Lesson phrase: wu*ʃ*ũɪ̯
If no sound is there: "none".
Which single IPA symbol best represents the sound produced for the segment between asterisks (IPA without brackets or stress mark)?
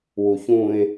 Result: ç